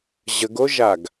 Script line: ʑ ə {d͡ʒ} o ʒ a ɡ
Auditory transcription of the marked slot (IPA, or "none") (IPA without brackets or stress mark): ɡ